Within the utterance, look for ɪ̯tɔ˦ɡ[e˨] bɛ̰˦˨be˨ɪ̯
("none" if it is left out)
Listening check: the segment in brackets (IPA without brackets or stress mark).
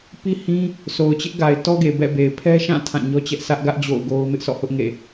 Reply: e˨